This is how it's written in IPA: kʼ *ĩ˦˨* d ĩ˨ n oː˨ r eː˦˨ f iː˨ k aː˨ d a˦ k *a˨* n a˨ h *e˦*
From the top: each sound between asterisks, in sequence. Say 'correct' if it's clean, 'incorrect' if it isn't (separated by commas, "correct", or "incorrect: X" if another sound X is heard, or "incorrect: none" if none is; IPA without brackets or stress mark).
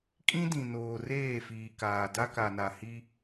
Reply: incorrect: ĩ˦, correct, incorrect: i˦